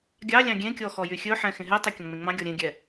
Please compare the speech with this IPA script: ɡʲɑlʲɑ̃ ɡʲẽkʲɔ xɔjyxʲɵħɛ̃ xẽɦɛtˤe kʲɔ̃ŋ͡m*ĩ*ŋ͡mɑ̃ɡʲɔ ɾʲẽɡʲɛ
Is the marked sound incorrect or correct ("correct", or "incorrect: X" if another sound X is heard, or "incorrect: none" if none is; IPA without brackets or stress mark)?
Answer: incorrect: ẽ